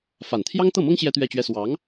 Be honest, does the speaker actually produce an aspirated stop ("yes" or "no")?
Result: yes